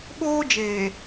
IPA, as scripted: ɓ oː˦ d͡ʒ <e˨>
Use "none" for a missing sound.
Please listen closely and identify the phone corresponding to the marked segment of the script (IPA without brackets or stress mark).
eː˨